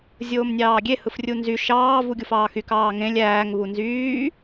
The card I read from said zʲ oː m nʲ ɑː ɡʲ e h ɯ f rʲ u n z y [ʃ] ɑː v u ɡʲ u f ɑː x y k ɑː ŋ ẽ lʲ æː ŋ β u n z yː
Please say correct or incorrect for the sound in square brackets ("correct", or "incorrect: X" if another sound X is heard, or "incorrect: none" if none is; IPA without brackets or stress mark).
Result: correct